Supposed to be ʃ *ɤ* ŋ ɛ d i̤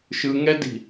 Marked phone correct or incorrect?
incorrect